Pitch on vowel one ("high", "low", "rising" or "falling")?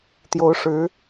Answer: rising